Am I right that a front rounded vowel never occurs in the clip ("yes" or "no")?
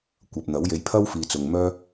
no